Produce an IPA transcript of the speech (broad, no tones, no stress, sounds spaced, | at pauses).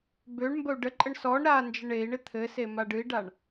b ø ɳ m b ə u̯ ɖ ə ǃʼ ə ɳ s ɔ ɳ ɾ a n d͡ʒ ɪ ɳ e i̯ ɳ ɪ t̪ʰ ɘ s e m a ɖ ɨ i̯ ɖ a ɳ